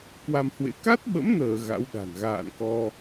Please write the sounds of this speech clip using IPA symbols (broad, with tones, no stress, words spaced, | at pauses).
kwa˧mhwḛ˧˥ ka˦˥t̚ɓə̰˧˥mnəː˧˩ ɣa̰˧˥wɗa̤˨˩n ɣa̰ː˧˨nkɔ˧